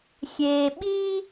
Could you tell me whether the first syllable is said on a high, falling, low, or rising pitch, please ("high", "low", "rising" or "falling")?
low